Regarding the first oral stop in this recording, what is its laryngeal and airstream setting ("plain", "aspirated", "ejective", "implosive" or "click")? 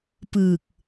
plain